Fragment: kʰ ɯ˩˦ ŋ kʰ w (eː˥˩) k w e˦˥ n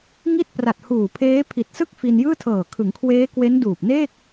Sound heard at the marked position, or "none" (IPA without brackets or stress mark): eː˦˥